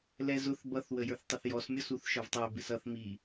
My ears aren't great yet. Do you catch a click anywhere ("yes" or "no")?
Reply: no